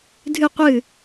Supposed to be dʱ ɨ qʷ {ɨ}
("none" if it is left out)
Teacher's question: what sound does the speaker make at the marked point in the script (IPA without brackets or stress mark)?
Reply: ɨ